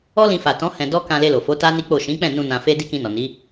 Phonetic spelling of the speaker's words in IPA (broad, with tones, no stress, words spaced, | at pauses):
ɔ˦ lĩ˧fa˨tɔ̃˨˦ hɛ̃˧dɔ˦ kã˧le˧lo˨fo˨˦ ta˦ni˦k͡po˦˨ ʃĩ˨˦k͡pɛ̃˦˨nũ˧ nã˧fe˦ di˦kĩ˧nɔ˨ ni˨˦